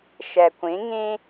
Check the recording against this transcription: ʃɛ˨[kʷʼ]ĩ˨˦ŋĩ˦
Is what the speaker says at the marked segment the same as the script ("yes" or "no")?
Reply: no